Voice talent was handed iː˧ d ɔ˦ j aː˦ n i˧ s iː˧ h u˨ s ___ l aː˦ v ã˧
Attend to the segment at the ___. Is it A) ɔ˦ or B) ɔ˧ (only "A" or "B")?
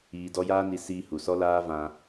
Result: A